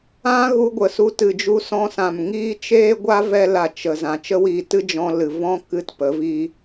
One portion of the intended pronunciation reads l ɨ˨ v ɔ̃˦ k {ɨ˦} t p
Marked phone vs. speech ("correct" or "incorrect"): correct